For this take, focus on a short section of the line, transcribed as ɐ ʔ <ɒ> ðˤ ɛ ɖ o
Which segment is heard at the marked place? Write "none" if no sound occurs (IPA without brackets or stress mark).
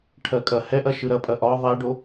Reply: ɒ